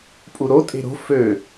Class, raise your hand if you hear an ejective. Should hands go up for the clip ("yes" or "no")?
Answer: yes